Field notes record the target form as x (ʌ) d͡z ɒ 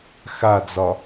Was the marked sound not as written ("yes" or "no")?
yes